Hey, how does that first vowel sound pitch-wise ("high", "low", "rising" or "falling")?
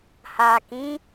low